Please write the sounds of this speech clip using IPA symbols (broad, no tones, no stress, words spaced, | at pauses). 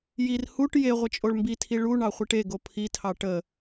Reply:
jir huʈ je ʁʷət͡ʃʼoɭmbitʰi ɭu ɳɑχʷiʈeɡo pʰitʰɑ ʈə